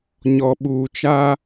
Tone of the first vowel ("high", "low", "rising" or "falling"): low